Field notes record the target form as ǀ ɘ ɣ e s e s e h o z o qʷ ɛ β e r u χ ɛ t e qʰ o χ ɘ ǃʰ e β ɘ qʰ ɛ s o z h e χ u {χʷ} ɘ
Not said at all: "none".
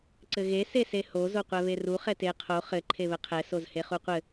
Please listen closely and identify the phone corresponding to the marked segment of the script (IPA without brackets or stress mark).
qʷ